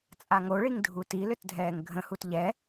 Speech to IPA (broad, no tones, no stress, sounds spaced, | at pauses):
t͡sʼ a ŋ o ɭ i ŋ dʱ u t i l ʏ t dʱ ɛː ŋ ɡʱ ə̃ h u t ʎ ɛ